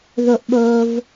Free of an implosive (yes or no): no